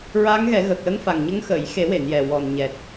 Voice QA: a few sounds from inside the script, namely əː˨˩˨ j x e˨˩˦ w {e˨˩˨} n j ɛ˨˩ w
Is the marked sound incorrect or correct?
correct